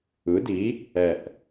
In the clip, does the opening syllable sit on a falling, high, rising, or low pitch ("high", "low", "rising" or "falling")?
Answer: rising